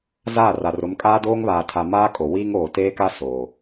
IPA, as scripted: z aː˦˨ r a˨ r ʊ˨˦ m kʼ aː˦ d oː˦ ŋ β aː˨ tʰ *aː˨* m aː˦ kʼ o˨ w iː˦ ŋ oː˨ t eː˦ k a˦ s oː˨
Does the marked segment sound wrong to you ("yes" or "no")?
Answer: yes